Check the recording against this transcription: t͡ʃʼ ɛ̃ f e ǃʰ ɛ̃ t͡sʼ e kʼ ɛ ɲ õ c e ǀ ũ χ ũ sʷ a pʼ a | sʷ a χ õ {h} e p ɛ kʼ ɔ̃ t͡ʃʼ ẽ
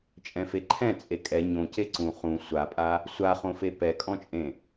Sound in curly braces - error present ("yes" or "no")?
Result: yes